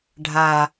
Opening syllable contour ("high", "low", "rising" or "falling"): low